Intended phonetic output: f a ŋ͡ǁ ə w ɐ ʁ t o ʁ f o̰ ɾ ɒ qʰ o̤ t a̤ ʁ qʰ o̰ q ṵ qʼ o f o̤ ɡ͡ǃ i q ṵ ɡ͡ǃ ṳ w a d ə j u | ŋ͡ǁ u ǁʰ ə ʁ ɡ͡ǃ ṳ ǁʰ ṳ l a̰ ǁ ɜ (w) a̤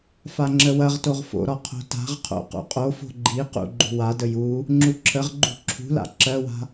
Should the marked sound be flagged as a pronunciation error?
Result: no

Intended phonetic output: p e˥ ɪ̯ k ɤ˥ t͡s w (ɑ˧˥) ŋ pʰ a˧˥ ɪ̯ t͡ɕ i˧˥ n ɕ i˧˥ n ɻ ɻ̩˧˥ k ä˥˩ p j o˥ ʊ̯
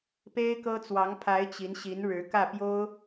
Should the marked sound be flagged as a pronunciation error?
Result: no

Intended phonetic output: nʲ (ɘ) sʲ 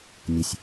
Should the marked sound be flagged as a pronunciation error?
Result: no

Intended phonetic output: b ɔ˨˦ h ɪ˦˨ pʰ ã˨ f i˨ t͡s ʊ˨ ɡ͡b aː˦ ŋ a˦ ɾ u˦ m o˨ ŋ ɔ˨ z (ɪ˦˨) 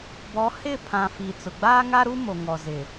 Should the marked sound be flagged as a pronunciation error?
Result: yes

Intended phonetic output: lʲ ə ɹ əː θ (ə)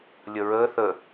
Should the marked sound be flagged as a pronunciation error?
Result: no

